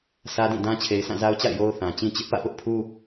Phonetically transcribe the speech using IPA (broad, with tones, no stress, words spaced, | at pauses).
sä˦dĩ˦˨dã˦ t͡ɕʰe˨ɪ̯sʰã˦˨za˦ʊ̯t͡ɕa̰˦˨ɪ̯ jo˦ʊ̯θã˨ t͡ɕĩ˦t͡ɕɪ˦ʔ pä̰˦˨pʊ˦ʔpʰu˦